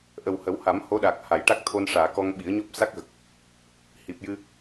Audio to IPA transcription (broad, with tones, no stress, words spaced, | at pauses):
ʔə˨˩whə˨˩˦wha˨˩˦m ho˧˥ ɗa˨˩k̚ha˨˩˨jʈa˦˥k̚ t̪ʰo˧nʂaː˨˩˨ kɔ˧ŋɓi˨˩˦ə̯ɲɔ˦˥p̚ sa˦˥k̚ɣə˨˩k̚ | hi˨˩p̚jɨ˧